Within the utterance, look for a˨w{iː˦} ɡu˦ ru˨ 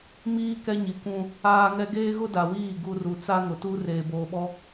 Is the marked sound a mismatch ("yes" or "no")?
yes